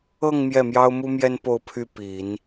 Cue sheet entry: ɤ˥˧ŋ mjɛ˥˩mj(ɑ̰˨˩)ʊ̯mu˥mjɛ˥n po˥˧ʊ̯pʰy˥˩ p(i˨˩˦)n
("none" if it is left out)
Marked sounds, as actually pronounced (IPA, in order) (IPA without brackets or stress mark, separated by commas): ɑ˥, i˨˩˦